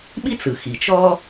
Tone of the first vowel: high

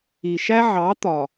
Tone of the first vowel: low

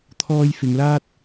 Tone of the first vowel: high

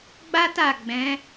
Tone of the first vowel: high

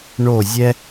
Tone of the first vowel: falling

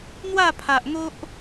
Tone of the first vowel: falling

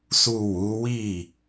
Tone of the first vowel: low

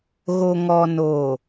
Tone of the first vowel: low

